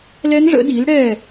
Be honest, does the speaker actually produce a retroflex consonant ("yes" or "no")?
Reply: yes